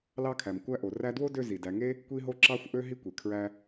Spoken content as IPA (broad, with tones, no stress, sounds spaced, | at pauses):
l ɑ˦ kʰ æ˩ m kʷ æ˦ ʔ o˩ r æ˦ d w o˥ d ø˦ z i˩ d æ˨ ŋ e˥ | kʷ i˦ ɦ o˦ ǁ ɑ˥ xʷ ʔ ø˥ ɦ i˥ kʷ e˩ kʰ ɹ æ˦